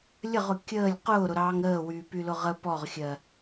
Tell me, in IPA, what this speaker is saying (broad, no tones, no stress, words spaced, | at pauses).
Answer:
lʲəʁʊ kʲəːlʲ qʊːɾʊɾɑːŋ ɾəːwyːpylʊ ʁə pɔʁxʲɜ